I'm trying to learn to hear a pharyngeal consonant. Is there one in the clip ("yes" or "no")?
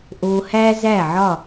yes